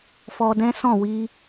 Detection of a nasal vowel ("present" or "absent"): present